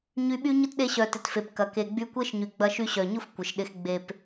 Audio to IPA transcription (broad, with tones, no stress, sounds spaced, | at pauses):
ɲ y˧ ɓ y˦ ɲ ʊ˦ t ɗ e˧ ɕ œ˨ t ɪ˨ t f e˨ p k ɐ˨ k e˨ ɡ͡b y˧ kʷ e˦ ʃ ɲ y˨ ɡ͡b ɐ˧ ʃ y˧ ɕ œ˨ ɲ ʊ˦ f kʷ ɪ˨ ʃ ɗ ɪ˧ x ɡ͡b e˨ p